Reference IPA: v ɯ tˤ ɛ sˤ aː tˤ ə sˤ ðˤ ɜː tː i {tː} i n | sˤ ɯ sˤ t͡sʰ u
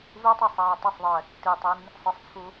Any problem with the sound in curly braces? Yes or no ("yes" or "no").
yes